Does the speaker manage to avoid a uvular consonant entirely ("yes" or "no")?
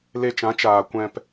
yes